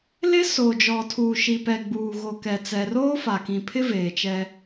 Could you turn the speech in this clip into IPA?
l ɪ˦ s o˨ d͡ʒ ɔ˨ tʰ uː˨ ʃ i˨ p ɛ˨ ɡ͡b uː˨ ɣ o˨ k ɛ˨ t͡s ɛ˨ r oː˦ f a˨ k ĩ˨ pʰ ɪ˦ v eː˨ t͡ʃ ɛ˦

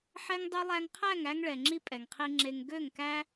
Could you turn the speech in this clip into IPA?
ħ ɛ˦ ŋ dˤ ø˦ lˠ æ˧ ŋ qʰ æ˦˨ ŋ æ˧ ŋ ɭ ɛ˨ ŋ͡ǁ i˧ pʼ ɛ˨ ŋ qʰ i˧ ŋ͡ǁ e˧ ŋ ɡ ø˦˨ ŋ k æ˦

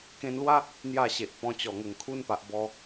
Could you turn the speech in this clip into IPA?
k ẽ˧ n l w a˦ | n̪ j a˥˧ ɕ e˨ ʔ p ɔ̃˧ t͡ɕ ɔ˨˩ ŋ ə˨˩ ŋ kʰ u˦ n p a˨ ʔ b ɔ˦

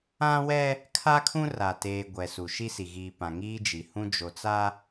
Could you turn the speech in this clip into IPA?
ã˦ w ɛ˦ | kʰ a˦ kʰ ũ˦ r a˨ t eː˨ ɡʷ ɛ˨ s u˨ ʃ i˦ s i˨ ɣ iː˨ p ã˨ ŋ iː˦ d͡ʒ i˨ h ũ˦ d͡ʒ o˨ t͡s a˦

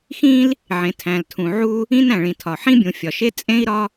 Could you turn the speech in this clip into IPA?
x ĩ˥ l | ʕ ẽ˩ tʰ æ̃˩ l tʰ ũ˩ ʕ u˥ | ĩ˥ n æ̃˩ ɭ ĩ˩ tʰ ɒ˩ ħ ĩ˥ bʲ ũ˩ fʲ ɒ˩ ʃ e˥ t͡sʼ ẽ˥ i̯ ɾ ɒ˥

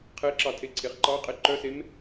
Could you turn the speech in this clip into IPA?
qʰ e ǁ ɑ tʰ e ǀʰ e χ ǃ ɑ qʼ e ǃ œ s e m

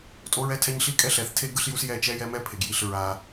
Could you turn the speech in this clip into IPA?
tʼ o˦ ɹ ɛ˦ tʰ ɛ˦ ɲ ɬ i˦ kʼ ɛ˦ ɬ ɛ˨˦ θ tʰ e˦ ɡ ɯ˦ ɬ j u˦ s j ɛ˦˨ t͡ʃ ɛ˦ j ɛ˦ m ɛ˦ pʰ e˨ ɡ j i˦˨ ɬ ɹ a˦

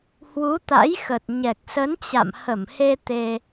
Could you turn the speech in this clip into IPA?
h w u˨˦ t̪ a̰˧˥ j x ə˨˩ t̚ ɲ ɛ˨˩ k̚ s ə˨˦ n t͡ɕ a̰˧˨ m h ə˧˩ m h e˧ t̪ e˧

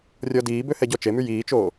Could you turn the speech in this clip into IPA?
rʲ ɔ d iː b ø h ɛ ɟ ɔ t͡ʃ e m y j iː t͡ʃ oː

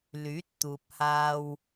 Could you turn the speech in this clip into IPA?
l yː˨˥ t̚ t̪ uː˨ p̚ h aː˧ w

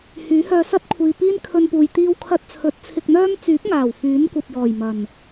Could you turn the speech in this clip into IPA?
h yː˨˥ h œː˧ s ɐ˥ t̚ kʷʰ iː˨ p iː˥ n kʰ ɵ˧ n p uː˨ j t̪ iː˧ w kʰ ɐ˧ t̚ t͡sʰ ɵ˨˥ t̚ t͡sʰ ɪ˧ k̚ n̪ œː˥ m t͡s yː˨˥ p̚ ŋ aː˨˩ w f yː˨˥ n kʷ ɐ˨ p̚ j ɔː˨˩ j m ɐ˨˩ n

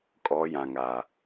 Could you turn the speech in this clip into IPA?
kʼ ɔ˨˦ j ã˨ ŋ a˨

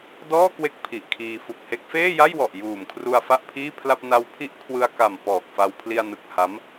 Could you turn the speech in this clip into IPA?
d ɔː˥˩ k w e˦˥ k̚ pʰ i˨˩ ʔ kʰ iː˧ f u˨˩ k̚ h e˦˥ k̚ f eː˥˩ j a˥˩ j w ɔ˨˩ ʔ j uː˨˩ m kʰ r u˧ a̯ f a˥˩ ʔ pʰ iː˥˩ pʰ l a˥˩ p̚ n a˦˥ w pʰ i˦˥ ʔ kʰ w ɯ˧ a̯ k a˨˩ m p ɔː˨˩ k̚ f a˧ w pʰ l i˧ a̯ n ɯ˨˩ k̚ h a˦˥ m

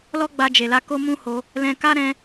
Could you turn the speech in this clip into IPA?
l ɔ˦ ɡ͡b a˧ d͡ʒ e˨ l a˧ k o˦ m ũ˦ h o˧ | l ɛ̃˧ k a˦ ɾ ɛ̃˧

